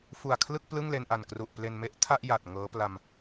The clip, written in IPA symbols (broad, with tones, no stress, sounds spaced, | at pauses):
f u˨˩ a̯ kʰ l ɯ˥˩ k̚ p l ɯ˥˩ ŋ l e˧ n ʔ a˨˩ n k r u˨˩ ʔ p l e˧ n m e˥˩ ʔ tʰ a˥˩ ʔ j a˨˩ t̚ ŋ ɤː˦˥ p l a˧ m